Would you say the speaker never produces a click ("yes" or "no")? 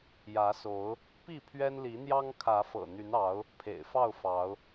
yes